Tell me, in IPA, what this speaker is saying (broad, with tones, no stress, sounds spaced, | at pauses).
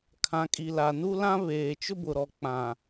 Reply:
kʰ ã˨ kʼ i˨ l a˨ n u˦ l ã˦ β eː˨ t͡ʃ ʊ˦ b ʊ˨ ɾ ɔ˨ k͡p ã˨